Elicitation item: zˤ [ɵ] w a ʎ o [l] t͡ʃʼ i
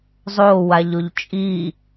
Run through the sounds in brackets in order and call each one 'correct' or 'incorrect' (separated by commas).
incorrect, incorrect